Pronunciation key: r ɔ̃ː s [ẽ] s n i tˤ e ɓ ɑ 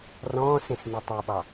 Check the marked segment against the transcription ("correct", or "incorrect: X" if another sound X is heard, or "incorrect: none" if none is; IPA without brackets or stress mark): correct